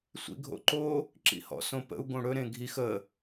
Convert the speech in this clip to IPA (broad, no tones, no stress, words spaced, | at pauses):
sʷḭɡʱo̰ǃo | ǁḭhɔ̰sõpə̰u̯ ɡõɽɵ ɾẽɡʱix ə